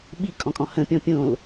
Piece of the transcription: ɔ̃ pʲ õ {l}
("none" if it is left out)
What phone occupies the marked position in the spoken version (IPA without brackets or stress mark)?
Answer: l